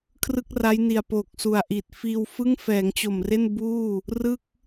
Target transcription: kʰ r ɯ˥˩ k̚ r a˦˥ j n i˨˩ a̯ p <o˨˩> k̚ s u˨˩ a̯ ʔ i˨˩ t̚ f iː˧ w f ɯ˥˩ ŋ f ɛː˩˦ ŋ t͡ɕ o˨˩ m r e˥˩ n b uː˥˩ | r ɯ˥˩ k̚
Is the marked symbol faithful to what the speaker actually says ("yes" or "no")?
yes